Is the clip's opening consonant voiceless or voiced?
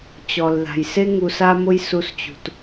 voiceless